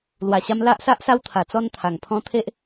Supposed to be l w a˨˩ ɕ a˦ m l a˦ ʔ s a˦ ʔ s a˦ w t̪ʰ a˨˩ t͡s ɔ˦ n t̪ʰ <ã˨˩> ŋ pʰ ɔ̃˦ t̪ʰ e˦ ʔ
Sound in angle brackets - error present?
yes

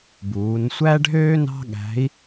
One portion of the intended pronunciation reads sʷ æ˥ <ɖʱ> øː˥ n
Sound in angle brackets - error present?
no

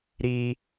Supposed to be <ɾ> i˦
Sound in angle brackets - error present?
no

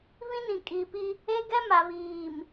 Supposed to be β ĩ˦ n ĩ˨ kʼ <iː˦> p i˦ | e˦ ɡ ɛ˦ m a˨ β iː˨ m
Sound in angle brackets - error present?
yes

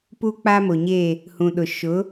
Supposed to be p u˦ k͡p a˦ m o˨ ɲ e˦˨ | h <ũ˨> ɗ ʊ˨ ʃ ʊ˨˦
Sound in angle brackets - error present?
no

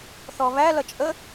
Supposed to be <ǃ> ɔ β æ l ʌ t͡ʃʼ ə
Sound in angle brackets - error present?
yes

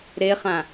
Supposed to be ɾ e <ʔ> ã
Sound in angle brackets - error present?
yes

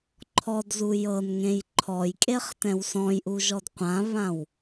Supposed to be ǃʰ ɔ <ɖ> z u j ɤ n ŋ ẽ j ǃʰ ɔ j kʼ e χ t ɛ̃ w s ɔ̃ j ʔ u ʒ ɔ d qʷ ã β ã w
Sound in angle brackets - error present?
yes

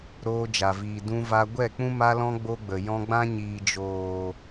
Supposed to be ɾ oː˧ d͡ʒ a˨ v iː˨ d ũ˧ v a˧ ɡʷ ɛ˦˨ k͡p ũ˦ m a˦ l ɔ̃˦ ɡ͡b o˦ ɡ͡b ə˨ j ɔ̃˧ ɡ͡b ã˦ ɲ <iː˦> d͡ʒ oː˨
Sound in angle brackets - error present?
yes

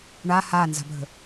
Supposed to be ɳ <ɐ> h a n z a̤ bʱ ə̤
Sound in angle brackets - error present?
yes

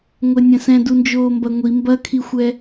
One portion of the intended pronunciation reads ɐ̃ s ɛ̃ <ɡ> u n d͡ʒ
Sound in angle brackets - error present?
yes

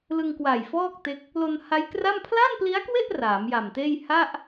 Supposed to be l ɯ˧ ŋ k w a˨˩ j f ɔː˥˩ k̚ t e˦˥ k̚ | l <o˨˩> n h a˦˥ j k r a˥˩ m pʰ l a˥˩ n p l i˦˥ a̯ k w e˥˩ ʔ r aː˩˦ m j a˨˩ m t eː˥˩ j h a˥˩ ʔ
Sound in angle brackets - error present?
yes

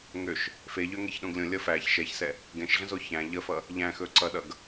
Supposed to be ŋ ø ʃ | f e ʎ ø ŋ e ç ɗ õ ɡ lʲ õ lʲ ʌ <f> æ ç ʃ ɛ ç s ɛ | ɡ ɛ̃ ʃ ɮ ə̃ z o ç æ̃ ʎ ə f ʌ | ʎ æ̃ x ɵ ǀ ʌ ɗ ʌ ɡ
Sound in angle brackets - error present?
no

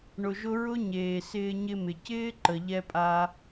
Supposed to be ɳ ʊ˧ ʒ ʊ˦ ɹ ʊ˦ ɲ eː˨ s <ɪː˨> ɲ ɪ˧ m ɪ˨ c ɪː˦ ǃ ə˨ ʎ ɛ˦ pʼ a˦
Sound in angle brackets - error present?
yes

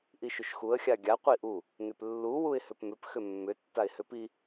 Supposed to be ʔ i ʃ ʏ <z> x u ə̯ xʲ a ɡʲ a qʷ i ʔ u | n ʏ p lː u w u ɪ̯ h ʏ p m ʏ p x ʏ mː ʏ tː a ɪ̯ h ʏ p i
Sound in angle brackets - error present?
yes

